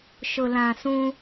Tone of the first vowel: low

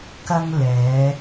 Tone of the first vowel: high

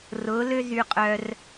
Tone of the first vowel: rising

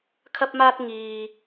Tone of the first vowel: high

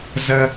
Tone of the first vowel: high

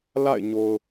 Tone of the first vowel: falling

